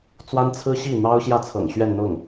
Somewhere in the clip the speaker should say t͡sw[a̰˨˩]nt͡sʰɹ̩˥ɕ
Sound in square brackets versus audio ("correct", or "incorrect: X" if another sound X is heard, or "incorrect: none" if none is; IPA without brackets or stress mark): incorrect: a˥